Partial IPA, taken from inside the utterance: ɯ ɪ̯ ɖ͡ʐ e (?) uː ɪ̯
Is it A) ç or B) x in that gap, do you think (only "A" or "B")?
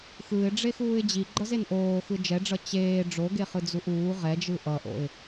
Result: B